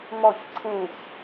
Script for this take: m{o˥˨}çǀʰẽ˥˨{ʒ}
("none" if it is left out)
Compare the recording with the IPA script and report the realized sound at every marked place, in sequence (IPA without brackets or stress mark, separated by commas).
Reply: ɔ˥˨, ç